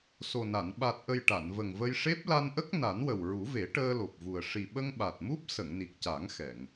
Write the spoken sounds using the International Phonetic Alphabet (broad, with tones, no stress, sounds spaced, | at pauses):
s o˨˩ n a˨˩˨ n ɓ a˨˩ t̚ ʔ ə˨˩ j ʈ a˨˩˨ n v ə˨˩ ŋ v ə˧ j ʂ e˦˥ p̚ l a˧ n ʔ ə˦˥ k̚ n a˨˩˦ n w ə˨˩ w ɹ u˨˩˦ v e˨˩˦ ʈ əː˧ l o˨˩ p̚ v u˨˩ ə̯ ʂ i˨˩ ɓ ə˧ ŋ ɓ a˨˩ t̚ m u˦˥ p̚ s ə˨˩˨ ŋ n i˨˩ k̚ c a˨˩˦ ŋ x ɛ˨˩˨ ŋ